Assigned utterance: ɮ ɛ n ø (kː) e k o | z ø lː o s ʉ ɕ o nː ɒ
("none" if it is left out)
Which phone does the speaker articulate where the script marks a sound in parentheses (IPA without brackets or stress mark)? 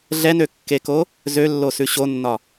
kː